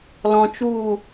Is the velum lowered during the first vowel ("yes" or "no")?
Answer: yes